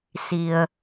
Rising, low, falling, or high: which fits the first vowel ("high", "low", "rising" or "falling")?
low